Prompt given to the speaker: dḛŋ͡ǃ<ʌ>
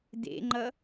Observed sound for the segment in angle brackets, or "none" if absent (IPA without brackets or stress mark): ʌ